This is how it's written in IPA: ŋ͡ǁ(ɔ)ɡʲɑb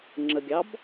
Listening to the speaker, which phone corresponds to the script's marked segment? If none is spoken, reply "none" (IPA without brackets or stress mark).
ə